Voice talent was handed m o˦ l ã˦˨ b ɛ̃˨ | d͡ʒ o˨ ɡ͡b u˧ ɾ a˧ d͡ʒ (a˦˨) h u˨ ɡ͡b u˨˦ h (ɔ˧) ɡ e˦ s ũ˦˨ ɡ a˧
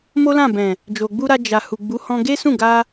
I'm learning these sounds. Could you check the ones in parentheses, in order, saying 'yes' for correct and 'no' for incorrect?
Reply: no, no

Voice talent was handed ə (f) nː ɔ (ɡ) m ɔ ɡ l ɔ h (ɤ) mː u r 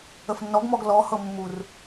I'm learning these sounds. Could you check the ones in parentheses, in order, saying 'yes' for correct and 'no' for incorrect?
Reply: yes, yes, yes

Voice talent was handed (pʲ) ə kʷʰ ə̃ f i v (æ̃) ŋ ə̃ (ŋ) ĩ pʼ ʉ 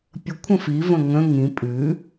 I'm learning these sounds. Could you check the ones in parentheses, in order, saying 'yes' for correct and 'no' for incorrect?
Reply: yes, no, yes

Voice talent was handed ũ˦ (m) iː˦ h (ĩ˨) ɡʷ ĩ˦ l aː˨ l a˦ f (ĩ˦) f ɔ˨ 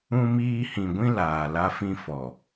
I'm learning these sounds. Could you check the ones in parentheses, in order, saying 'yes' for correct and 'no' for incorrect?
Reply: yes, yes, yes

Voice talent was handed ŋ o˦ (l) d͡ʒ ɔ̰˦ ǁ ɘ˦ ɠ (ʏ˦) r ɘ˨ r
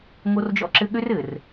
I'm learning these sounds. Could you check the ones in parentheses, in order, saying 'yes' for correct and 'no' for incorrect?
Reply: no, yes

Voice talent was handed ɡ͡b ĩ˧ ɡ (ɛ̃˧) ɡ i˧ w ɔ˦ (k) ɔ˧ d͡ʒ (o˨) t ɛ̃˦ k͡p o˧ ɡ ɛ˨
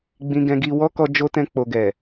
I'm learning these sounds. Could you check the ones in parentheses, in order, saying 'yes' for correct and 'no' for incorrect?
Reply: yes, yes, no

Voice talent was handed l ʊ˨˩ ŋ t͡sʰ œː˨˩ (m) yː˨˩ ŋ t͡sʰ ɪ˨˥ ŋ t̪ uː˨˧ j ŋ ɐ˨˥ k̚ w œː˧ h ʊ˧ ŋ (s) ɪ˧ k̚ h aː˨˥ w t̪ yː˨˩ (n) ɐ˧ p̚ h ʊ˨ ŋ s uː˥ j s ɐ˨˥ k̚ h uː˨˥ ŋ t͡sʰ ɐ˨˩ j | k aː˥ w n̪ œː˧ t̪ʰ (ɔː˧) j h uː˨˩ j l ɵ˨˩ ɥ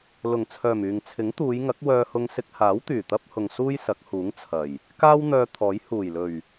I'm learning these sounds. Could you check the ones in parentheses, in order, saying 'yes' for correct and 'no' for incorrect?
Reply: yes, yes, no, no

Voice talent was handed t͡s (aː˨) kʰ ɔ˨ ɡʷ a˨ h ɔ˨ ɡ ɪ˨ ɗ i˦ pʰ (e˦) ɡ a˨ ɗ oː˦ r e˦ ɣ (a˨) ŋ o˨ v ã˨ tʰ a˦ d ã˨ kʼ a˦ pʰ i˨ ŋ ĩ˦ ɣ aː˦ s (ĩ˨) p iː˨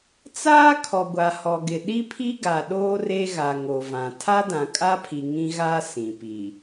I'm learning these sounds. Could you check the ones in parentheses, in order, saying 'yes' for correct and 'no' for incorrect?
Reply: no, no, yes, yes

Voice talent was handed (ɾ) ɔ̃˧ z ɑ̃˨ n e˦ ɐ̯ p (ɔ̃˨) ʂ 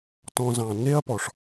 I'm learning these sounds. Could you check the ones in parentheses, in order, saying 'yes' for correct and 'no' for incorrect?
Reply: no, no

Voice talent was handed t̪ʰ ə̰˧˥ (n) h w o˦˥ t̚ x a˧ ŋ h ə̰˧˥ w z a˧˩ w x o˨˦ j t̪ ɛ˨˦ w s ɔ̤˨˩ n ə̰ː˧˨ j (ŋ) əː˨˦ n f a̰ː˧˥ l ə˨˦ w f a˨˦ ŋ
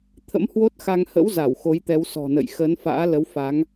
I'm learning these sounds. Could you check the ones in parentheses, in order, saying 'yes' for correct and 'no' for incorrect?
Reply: no, no

